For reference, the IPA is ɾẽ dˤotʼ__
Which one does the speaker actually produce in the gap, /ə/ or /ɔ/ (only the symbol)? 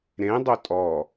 ɔ